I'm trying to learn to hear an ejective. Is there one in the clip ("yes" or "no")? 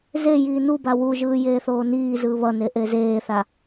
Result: no